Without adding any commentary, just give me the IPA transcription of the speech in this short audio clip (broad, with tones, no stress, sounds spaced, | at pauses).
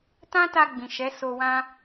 t ã˦ t a˧ ɡ͡b ĩ˨ ʃ ɛ˨˦ s o˧ w ã˦